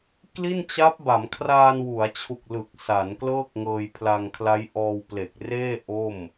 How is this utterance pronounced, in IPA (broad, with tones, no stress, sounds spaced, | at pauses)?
k l i˥˩ n t͡ɕ a˦˥ p̚ b a˩˦ m kʰ r aː˧ n w u˩˦ a̯ t͡ɕʰ u˨˩ k̚ l ɯ˨˩ k̚ s a˩˦ n k l ɤː˥˩ k̚ ŋ ɤː˧ j pʰ l a˧ ŋ kʰ l a˦˥ j ʔ ɔː˧ w p l e˨˩ k̚ r eː˥˩ ʔ o˥˩ m